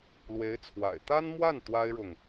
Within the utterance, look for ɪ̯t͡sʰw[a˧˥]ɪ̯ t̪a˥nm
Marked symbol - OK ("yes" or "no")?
no